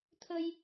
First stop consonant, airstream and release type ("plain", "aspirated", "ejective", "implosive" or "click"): aspirated